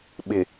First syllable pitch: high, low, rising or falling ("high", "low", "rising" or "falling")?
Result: low